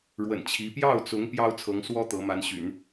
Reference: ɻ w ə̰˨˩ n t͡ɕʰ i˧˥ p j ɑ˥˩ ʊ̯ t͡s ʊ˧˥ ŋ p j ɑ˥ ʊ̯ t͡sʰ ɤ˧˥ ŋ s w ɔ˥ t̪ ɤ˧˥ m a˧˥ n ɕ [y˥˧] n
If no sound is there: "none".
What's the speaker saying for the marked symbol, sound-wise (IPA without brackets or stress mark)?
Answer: y̰˨˩˦